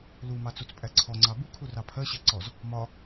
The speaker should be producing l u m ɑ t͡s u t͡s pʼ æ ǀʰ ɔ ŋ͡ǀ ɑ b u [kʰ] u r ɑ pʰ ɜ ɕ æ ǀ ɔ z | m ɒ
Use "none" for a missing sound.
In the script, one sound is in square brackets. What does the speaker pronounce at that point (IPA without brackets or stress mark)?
kʰ